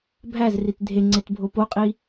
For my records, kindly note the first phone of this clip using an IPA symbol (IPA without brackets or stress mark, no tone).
bʱ